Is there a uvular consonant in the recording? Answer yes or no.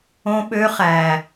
yes